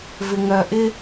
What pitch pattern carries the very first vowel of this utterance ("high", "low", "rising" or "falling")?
low